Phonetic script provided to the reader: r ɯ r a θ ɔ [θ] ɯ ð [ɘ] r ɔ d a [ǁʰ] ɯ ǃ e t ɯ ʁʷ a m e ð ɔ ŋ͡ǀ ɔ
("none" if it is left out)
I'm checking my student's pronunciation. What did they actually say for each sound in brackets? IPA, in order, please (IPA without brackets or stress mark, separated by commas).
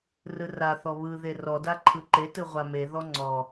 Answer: β, e, ǃʰ